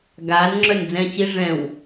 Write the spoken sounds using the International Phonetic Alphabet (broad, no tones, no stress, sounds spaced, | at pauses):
ɡ aː n ŋ͡ǁ œ n d͡z ɛ̃ t͡ɕ i ʐ ɛ̃ w